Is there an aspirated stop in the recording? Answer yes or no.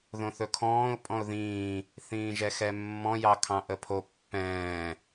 yes